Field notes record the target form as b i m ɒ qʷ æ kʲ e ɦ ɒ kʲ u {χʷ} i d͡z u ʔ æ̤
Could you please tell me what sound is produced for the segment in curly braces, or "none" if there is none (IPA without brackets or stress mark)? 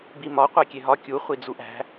χʷ